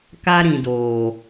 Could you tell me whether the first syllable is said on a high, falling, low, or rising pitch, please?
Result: high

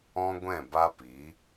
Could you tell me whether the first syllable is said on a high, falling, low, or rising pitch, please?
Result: high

